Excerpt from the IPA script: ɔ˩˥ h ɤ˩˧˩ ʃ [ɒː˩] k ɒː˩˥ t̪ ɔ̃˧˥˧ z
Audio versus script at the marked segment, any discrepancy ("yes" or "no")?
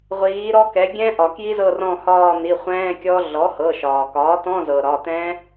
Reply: no